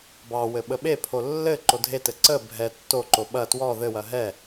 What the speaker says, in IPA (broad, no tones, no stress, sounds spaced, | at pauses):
b ɑ w ɘ ɓ ə ɓ e pʰ o lː ɘ ǃ o dʱ e t ɘ ǀ ə bʱ ɛ tː o ǃ o ɓ ɐ t w ɔ ð ɘ w ɐ ɦ ɛ